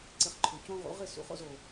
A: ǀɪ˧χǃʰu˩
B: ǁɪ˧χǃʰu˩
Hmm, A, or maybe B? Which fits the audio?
A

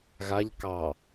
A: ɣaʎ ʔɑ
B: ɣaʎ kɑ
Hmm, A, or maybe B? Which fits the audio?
B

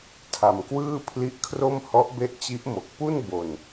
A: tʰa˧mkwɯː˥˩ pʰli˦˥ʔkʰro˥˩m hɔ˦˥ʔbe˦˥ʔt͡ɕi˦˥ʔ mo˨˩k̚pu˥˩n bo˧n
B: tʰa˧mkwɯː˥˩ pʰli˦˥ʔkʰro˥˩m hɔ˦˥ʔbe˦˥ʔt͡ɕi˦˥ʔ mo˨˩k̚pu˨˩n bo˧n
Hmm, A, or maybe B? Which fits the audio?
A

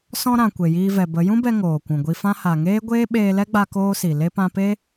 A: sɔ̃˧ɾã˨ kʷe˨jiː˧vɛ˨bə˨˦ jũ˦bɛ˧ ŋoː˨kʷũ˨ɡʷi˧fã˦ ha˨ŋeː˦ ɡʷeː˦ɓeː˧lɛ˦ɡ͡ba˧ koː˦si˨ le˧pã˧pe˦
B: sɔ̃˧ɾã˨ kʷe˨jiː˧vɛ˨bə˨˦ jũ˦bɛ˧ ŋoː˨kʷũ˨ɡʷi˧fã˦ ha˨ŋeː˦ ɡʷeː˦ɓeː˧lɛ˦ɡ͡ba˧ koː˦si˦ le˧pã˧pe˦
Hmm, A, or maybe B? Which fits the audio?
A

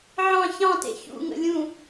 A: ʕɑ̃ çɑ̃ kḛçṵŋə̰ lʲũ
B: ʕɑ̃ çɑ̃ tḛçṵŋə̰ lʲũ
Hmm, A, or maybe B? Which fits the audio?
B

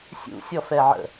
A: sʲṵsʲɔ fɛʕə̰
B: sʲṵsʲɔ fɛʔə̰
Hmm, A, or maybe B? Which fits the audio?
A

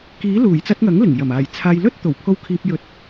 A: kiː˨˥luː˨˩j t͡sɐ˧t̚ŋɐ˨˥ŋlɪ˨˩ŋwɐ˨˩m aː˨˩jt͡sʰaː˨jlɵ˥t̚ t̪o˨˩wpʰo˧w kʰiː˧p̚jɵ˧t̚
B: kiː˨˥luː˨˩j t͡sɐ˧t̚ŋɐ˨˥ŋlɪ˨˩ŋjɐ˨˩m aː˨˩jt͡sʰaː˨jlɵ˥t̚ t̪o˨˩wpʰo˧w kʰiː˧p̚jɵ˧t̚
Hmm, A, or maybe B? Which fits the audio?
B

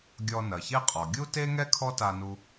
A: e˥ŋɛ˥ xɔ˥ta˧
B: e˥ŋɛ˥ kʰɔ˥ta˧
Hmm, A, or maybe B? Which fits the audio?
B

